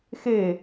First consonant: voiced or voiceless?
voiceless